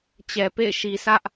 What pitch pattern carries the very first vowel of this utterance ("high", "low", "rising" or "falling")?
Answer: low